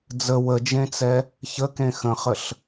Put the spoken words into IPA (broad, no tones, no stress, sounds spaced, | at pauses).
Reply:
d͡z ə w ə d͡ʒ ẽ t͡s ɛ | ç ə k ẽ x ə̃ χ ə ɬ